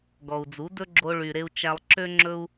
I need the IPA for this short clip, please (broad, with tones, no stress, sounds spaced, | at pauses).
ɡ ɔ˨ u̯ d͡z u˨˦ d ɵ˦ ɡ͡ǁ o˧ ɭ y˨ ɾ e˧ u̯ t͡ʃ æ˧ lˠ ǁ ø˦ ŋ͡ǁ ɵ˦ u̯